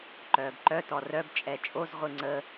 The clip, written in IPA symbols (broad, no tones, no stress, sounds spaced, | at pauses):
ǃ œː b ǃ œ t ɔ r œ b t͡ʃʼ ɛ t͡ʃʼ o z ʁʷ ɨ ŋ͡ǀ ə